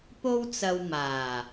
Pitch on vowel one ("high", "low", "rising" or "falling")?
high